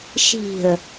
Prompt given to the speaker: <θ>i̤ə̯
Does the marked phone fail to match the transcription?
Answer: yes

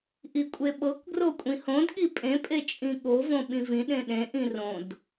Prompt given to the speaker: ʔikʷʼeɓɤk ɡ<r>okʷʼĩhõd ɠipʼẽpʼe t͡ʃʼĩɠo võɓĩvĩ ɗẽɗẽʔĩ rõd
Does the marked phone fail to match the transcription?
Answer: no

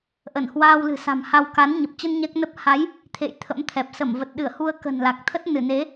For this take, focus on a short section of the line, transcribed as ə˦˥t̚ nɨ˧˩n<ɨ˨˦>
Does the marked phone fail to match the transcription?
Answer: yes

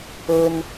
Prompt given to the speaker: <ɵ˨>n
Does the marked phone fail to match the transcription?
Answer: no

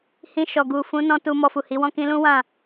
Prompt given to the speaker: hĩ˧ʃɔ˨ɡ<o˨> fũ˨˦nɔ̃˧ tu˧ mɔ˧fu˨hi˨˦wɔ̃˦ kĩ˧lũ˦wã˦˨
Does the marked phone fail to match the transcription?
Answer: yes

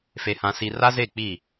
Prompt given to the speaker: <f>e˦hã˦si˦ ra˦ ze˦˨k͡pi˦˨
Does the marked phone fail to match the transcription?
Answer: no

